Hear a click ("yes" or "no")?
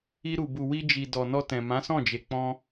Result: no